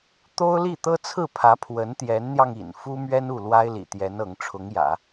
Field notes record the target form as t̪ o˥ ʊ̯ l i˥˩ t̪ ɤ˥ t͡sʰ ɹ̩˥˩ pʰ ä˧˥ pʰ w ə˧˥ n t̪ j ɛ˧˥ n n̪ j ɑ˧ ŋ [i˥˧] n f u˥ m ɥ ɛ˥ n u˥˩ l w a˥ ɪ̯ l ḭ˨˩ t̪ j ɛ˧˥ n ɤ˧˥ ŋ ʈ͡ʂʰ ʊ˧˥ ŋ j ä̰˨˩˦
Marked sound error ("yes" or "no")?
yes